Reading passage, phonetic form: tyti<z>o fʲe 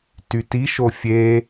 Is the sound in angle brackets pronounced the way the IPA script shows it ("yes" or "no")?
no